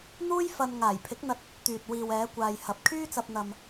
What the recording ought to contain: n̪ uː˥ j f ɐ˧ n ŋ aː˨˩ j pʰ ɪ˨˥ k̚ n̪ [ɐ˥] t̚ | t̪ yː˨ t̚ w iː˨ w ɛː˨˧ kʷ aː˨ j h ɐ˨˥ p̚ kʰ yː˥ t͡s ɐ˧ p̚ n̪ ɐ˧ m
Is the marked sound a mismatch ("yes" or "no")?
yes